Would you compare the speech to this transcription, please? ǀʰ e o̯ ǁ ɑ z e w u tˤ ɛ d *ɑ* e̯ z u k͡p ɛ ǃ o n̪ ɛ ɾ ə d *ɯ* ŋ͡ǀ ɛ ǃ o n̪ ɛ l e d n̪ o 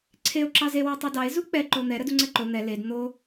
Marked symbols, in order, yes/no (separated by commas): yes, no